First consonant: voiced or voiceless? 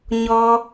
voiced